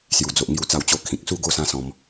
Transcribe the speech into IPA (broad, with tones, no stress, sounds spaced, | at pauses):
s j u˨˩ d͡z o˨ ʔ ŋ j u˧ t͡s a˧ w t͡ɕ o˧ kʰ ĩ˨ k̚ s u˥˧ ɡ o˥˧ s ã˦ s ɔ̃˧ m